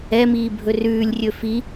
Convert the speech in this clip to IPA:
ɛ m iː bʱ ɵ r ʉː lʲ rʲ ɵ f i

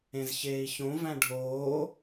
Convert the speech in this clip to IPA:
ẽ z ç eː i̯ ç õ v æ̃ ɖʱ oː

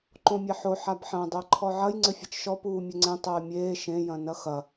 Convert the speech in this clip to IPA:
ǃ õ mʲ ɛ ħ o ħ a b ħ ɐ̃ dˤ ɘː ǃʰ ɔ ʕ ɐ j ŋ͡ǀ ɘ fʲ ɐ t͡ʃ ʃ ɔ p uː mʲ ɘ ŋ͡ǀ ẽ tˤ ɘː mʲ eː ʃ ẽ j ɐ̃ n ɐ x ɐ

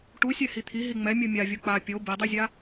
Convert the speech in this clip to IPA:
ʈ u sʲ ɛ h i t̪ʰ i ɦ i ŋ͡m ɛ mʲ u mʲ a vʲ u k͡p a pʲ o b i dˤ i zʲ a

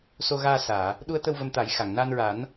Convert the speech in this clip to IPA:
s o˧ ɣ aː˧ s aː˨˩˨ | ɗ u˧˥ ə̯ t̪ ə˧ w v ə˧ m t̪ a˨˩˦ j x a˨˩˨ ŋ n a˧ n ɹ a˨˩˦ n

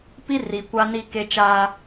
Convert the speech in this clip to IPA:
p i˦ r i˨ kʷ a˦ n i˦ k e˦ t͡ʃ aː˦

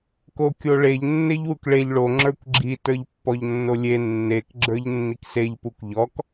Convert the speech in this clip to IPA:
k o kʲ o ɭ e ʎ nː e ʎ w u k ɭ e ʎ ɭ o ŋ͡ǁ ə˞ kʷ ɡ͡ǁ i t ə˞ ʎ pː ɔ ʎ nː o lʲ e nː e k ɡ͡ǁ ə˞ ʎ nː i k s e ʎ p u kʷ ʎ ɔ k

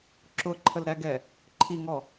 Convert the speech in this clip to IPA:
ǁ ʊ ǃʰ ə l ɾ æ ɡ ɛ | ǃʰ i ŋ ɔ

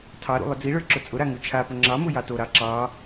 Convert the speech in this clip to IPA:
tʰ ɑ ɾ ṵ lˠ ʊ d͡z i ɭ ə˞ ǁ ʊ t͡sʼ ʊ ɾ a ŋ u t͡ʃʰ a p ʊ ŋ͡ǁ ɑ m ʊ j ɑ t o ɾ ɑ ǁ ɑ

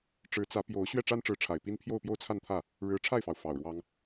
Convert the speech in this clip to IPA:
ʈ͡ʂ ɻ̩˧˥ t͡s ä˧˥ p j o˧˥ ʊ̯ ɕ ɥ ɛ˥˩ ʈ͡ʂ a˥ n ʈ͡ʂ ɻ̩˧˥ ʈ͡ʂʰ a˨˩ ɪ̯ p i˥ n pʰ j o˥˧ ʊ̯ p j o˥˧ ʊ̯ t͡sʰ a˥˧ n t̪ʰ ä˥˩ | ɻ ɻ̩˧˥ ʈ͡ʂʰ a˥˩ ɪ̯ f ɑ˩ ʊ̯ f ɑ˨˩ ʊ̯ ɻ w ɑ˥ ŋ

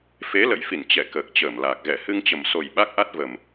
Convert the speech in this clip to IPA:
f e˨˦ l ə̰˧˨ j f i˧˩ n t͡ɕ ɛ˧˩ k əː˨˩ k̚ t͡ɕ əː˧˩ m l aː˨˩ k̚ ɣ ɛ˧˩ h ɨ˧ ŋ t͡ɕ ə˨˩ m s o˨˩ j ɓ a˦˥ k̚ ʔ a˦˥ t̚ v ə˨˩ m

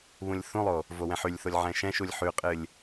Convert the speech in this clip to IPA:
β ũ lʲ θ ũ lˠ o | v o w ɛ̃ ħ y lʲ θ o lʲ ʕ ɛ̃ ʃ ɛ̃ ʃ u lʲ ħ y qʼ ɨ lʲ

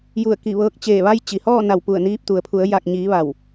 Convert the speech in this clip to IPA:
j u˧˩ ə̯ k i˧˩ ʋ ɤː˧ k̚ t͡ɕ eː˧˩ ʋ a˧ j t͡ɕ i˩ h ɔː˥˨ n a˧˩ w p u˧˩ ə̯ n iː˧ p̚ t̪ u˩ ə̯ pʰ u˩˧ ə̯ j a˧˩ k̚ ɲ iː˩˧ ʋ a˧˩ w

